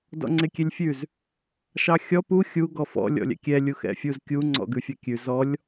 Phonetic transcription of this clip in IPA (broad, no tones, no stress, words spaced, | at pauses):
dɔ̰ŋ͡ǀekʲelʲfʲʉz | ʃɑxʲɔ pu xʲu ɡɔfɔ̰ lʲɔ̰lʲɛ̰kʲɛ lʲuxɛ̰fʲuz kʲu ŋ͡ǀɔ̰ɡʉfʲɑkʲʉ zɔlʲ